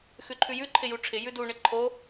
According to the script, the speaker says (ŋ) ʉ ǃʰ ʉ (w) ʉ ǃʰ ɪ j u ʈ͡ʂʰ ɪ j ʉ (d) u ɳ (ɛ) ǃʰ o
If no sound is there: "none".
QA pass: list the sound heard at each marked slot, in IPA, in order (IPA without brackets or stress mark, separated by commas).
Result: x, j, d, ɪ